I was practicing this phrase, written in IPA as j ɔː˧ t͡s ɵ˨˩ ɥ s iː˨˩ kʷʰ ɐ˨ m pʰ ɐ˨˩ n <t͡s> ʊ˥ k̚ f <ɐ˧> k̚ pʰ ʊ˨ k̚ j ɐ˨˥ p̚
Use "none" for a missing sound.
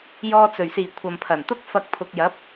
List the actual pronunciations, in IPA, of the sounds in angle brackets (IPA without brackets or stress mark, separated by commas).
t̪, ɐ˧